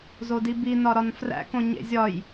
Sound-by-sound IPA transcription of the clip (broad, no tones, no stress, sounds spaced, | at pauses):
z o d i b i n ɒ ɾ ɒ n f r æ̰ k õ ɲ ḛ zʲ ɒ j